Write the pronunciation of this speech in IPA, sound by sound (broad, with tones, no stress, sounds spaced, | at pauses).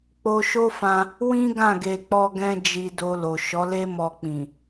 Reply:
k͡p o˧ ʃ o˦ f ã˧ | w ĩ˦ ɡ ã˦˨ ɡ e˧ k͡p ɔ˦ ɡ ɛ̃˦ d͡ʒ i˧ d o˧ l o˨ ʃ ɔ˨˦ l e˦ m ɔ˧ k͡p ĩ˨